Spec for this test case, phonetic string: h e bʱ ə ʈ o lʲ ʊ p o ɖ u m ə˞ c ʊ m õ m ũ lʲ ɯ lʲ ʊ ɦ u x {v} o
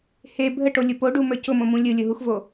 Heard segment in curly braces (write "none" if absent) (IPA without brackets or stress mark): v